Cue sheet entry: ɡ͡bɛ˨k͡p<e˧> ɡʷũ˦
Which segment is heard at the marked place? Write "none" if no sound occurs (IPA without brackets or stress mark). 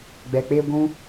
e˧